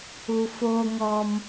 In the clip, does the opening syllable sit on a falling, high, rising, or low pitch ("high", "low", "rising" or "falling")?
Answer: low